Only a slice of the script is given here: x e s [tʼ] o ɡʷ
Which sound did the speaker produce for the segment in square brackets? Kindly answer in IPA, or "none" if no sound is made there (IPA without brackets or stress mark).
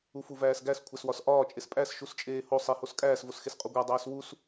qʼ